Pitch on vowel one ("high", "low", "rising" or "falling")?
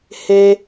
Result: high